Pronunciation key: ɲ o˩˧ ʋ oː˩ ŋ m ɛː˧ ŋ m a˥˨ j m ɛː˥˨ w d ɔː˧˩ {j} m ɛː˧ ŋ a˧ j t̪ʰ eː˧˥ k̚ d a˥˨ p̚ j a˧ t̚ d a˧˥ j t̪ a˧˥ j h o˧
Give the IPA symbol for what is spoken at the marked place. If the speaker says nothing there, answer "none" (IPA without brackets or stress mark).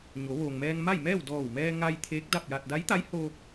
w